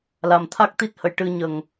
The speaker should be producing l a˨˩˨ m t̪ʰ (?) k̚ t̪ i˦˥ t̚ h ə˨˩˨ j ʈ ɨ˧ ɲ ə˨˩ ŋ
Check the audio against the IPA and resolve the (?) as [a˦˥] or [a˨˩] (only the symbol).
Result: a˦˥